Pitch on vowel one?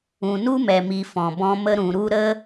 low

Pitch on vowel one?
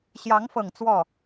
rising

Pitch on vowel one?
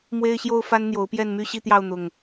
high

